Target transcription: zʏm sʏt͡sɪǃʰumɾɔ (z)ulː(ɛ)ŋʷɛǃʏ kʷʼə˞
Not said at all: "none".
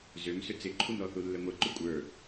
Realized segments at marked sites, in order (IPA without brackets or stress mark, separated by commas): θ, ɛ